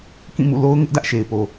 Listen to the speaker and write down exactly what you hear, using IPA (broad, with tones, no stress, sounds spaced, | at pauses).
k ĩ˦˨ m ṵ˦˨ l o˦ ʊ̯ ŋ ɪ˦ ʔ d ä˦ ʔ ʃ e˨ ɪ̯ p o˨